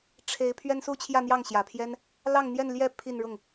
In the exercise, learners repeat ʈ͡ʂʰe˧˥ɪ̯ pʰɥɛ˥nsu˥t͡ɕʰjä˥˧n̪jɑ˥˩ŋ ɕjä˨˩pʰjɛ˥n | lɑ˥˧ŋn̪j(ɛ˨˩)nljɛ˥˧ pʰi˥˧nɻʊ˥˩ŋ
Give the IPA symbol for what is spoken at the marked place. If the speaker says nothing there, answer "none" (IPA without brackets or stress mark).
ɛ˥˧